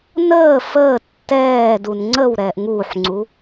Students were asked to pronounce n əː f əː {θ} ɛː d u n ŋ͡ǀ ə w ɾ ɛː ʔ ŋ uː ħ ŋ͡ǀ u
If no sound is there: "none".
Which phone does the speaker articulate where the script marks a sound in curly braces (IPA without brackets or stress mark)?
tː